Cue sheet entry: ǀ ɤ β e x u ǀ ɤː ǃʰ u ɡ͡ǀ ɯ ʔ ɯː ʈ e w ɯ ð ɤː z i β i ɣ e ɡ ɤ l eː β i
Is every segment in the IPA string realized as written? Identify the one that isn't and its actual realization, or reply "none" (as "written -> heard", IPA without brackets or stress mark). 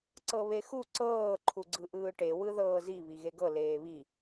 none